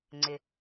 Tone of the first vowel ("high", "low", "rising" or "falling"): low